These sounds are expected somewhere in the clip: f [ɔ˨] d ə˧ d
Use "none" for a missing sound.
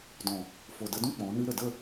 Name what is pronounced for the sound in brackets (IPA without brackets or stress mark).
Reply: o˨